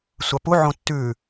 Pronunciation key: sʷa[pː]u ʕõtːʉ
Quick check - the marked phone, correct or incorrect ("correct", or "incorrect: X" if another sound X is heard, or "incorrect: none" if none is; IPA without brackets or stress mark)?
incorrect: p